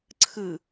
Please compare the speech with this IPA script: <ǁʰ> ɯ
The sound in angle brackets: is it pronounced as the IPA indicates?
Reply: no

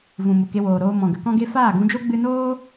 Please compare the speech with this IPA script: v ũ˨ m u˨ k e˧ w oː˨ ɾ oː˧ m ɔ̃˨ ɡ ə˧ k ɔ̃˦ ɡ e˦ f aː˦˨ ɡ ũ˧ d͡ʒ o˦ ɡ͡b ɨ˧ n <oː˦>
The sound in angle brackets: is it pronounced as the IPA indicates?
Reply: yes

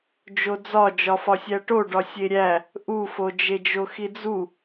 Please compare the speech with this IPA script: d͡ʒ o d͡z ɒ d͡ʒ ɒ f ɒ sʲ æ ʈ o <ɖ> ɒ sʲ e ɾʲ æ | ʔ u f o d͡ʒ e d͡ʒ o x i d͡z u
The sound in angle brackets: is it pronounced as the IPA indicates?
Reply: yes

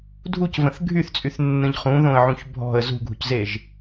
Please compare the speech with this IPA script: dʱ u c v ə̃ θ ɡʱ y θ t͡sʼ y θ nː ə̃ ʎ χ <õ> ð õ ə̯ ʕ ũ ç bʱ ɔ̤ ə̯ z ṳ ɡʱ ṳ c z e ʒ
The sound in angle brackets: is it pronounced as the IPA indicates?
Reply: no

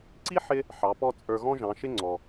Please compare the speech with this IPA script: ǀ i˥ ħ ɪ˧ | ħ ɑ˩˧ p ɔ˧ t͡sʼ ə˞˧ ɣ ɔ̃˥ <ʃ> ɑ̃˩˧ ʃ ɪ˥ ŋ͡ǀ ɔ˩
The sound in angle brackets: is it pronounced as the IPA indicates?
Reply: no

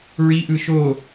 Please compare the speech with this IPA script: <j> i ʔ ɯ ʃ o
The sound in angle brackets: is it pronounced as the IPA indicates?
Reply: no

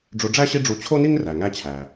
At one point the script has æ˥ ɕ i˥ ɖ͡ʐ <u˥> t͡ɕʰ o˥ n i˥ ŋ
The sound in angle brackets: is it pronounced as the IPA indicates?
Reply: no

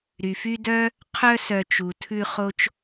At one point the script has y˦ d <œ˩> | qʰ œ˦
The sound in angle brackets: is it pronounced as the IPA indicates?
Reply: no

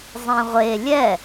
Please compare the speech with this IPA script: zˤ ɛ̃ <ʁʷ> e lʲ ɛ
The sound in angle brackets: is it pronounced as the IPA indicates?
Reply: yes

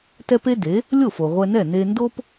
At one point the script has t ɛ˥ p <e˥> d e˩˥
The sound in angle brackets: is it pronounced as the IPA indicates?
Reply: yes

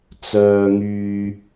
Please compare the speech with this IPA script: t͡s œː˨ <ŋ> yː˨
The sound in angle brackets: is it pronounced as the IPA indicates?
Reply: yes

